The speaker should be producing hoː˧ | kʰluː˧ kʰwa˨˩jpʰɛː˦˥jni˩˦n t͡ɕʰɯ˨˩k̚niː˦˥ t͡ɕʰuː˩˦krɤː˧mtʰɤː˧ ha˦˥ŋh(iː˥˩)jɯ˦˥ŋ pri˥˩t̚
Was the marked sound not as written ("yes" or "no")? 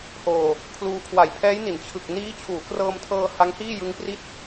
no